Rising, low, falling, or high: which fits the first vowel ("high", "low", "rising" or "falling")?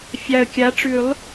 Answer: low